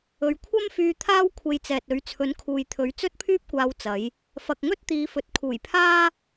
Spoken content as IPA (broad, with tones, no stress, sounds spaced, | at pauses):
ɵ˨ ɥ kʷʰ ɐ˥ m f yː˧ t̪ʰ aː˥ w kʷʰ e˧ j t͡s ɛː˨ t̚ ɵ˨˥ ɥ t͡sʰ ɵ˨˥ n kʰ uː˨ j t̪ʰ ɵ˨˥ ɥ t͡s ɵ˥ t̚ pʰ yː˥ p̚ kʷ aː˧ w t͡s ɐ˨˥ j | f ɐ˨ k̚ ŋ ɵ˥ t̚ t̪ iː˨˧ f ɵ˨˥ t̚ kʰ uː˨˩ j pʰ aː˥